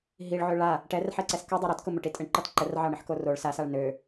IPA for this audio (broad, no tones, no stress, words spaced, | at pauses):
ɦiɭʕø ɭa | ʈɛrħɛǀɛs kʊ dˤøɾɒtkʊ mʊʈitʼəɳ ǃɒtǃər ʕɑɳəħkoroɭ sasaɭ nø